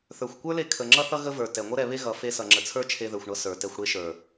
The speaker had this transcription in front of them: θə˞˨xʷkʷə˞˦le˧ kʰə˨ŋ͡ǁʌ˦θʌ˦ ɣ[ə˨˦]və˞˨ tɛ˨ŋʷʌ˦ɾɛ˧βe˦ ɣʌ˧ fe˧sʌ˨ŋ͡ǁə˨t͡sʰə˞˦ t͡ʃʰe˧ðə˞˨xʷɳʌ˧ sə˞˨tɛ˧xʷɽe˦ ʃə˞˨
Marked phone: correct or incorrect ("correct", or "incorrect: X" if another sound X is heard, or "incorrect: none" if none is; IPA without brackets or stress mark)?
incorrect: ə˧